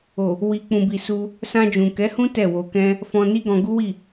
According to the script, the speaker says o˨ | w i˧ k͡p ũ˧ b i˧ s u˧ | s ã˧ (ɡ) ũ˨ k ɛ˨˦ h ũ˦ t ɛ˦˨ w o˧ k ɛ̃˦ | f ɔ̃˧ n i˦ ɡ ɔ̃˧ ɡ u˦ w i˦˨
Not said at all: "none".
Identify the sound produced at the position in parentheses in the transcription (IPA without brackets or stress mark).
d͡ʒ